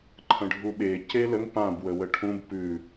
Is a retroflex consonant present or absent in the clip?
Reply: present